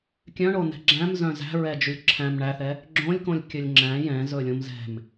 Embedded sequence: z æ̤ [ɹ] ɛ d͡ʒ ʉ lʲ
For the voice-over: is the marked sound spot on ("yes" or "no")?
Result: yes